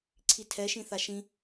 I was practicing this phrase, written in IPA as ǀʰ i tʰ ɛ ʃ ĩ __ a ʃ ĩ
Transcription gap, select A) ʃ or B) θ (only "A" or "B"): B